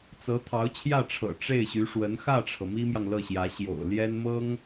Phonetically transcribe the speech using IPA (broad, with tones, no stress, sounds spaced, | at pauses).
t͡s ɤ˧˥ t̪ʰ ɑ˧˥ ʊ̯ t͡ɕʰ j ä˥˩ ʈ͡ʂʰ ɤ̰˨˩ ʈ͡ʂ e˥˩ ɪ̯ ɕ y˧˥ ʂ w ə˧˥ n x ä˥˩ ʈ͡ʂʰ ɤ˩ m i˥ m j ɑ˨ ŋ l ɤ˥˩ ɕ j ä˧˥ ɕ j o̰˨˩ ʊ̯ l j ɛ˥ n m ɤ˥ ŋ